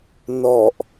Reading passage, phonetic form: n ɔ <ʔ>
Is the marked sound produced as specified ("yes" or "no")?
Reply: yes